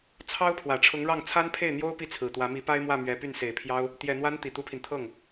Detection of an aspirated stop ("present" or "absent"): present